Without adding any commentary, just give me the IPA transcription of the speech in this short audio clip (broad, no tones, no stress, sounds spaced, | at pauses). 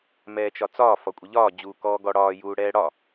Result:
m ɛː t͡ʃ ɒ t͡s ɒː f ɒ kʷʼ ə ʎ ɒː d͡ʑ uː k ɔː ɡ ɔ ɽ ɒː j uː ɽ ɛː ɽ ɒ